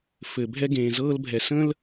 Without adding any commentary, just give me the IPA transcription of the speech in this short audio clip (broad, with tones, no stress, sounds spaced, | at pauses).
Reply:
f ɘ˩ bʱ ɛ˦ ɡ ẽː˩ z ɤː˦ l bʱ ɛ˩ s ə̃˥ l